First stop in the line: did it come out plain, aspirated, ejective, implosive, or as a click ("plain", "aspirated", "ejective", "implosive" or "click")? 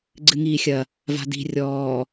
click